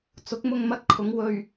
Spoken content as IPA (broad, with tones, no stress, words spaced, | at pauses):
t͡sʊ˨˥k̚mʊ˧ŋmɐ˧t̚kʰʊ˨˧ŋ wɵ˧ɥ